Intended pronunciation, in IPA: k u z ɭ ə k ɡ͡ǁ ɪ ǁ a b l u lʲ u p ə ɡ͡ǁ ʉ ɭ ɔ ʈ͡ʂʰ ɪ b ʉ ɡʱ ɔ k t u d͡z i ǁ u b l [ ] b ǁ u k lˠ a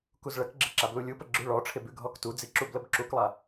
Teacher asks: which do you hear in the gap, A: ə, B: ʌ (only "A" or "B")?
A